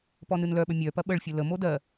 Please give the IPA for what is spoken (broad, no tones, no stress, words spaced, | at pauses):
pɔnɨnlœɓə mʲœpɐ ɓəɭfʲə ləmo dɜ